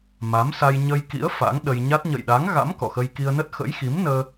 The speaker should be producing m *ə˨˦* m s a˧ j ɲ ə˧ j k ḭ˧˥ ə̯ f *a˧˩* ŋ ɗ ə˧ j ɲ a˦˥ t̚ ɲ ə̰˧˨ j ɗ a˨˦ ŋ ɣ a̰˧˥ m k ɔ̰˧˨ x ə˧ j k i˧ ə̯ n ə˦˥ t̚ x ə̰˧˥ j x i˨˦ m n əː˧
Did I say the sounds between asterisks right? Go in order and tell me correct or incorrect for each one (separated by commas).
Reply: incorrect, incorrect